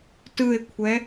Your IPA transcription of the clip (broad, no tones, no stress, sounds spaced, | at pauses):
t ɯ e̯ kʷʰ ɛ